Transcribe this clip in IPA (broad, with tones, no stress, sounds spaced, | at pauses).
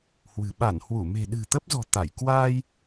h w ɨ̤˨˩ ɓ a˧˩ n h w u˧˩ m e̤˨˩ ɗ ɨ̤˨˩ t̪ ə˦˥ p̚ z ɔ̤˨˩ t̪ a˧˩ j k w aː˧ j